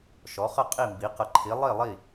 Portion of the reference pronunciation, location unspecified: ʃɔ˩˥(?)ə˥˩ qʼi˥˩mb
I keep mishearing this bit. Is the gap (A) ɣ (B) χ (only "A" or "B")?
B